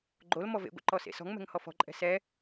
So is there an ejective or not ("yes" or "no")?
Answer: yes